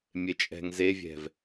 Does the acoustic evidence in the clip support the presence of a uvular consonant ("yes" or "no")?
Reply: no